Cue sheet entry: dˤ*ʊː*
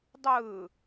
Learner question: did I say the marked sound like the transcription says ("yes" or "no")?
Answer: no